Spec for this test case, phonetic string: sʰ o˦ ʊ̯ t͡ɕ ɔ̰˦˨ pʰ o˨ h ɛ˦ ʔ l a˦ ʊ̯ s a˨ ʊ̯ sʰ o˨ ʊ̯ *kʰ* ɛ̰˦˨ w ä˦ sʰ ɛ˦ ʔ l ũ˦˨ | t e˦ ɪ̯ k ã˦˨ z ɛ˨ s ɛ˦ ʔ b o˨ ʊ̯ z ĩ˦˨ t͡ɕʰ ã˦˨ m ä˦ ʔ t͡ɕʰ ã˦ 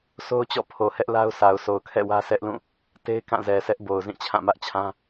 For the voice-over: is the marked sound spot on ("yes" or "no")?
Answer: yes